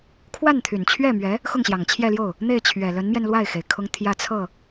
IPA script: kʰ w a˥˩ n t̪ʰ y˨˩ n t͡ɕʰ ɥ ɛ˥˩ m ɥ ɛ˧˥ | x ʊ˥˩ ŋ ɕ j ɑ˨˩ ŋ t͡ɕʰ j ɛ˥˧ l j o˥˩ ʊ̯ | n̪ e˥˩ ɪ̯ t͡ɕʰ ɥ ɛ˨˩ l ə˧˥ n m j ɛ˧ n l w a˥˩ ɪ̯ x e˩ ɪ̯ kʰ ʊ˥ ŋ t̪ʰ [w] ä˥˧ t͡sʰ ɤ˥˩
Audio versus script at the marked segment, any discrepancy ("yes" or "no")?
yes